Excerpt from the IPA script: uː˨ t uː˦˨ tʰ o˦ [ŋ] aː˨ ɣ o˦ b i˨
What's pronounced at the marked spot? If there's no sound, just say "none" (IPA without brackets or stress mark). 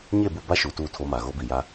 m